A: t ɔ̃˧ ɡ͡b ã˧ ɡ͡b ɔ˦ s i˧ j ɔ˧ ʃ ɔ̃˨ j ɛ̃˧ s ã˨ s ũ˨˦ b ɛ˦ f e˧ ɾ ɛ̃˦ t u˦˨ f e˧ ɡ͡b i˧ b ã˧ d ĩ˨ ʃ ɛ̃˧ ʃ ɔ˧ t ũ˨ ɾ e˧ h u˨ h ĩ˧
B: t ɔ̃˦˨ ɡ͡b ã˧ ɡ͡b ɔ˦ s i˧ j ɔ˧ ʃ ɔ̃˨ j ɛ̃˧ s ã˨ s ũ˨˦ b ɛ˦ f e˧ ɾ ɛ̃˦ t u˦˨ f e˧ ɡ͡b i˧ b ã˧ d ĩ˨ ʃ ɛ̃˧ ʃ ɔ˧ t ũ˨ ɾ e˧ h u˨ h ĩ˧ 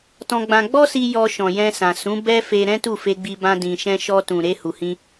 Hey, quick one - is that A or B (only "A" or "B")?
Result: A